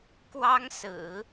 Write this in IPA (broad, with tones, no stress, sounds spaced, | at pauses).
k w ɑ˥ ŋ s ɹ̩˨˩˦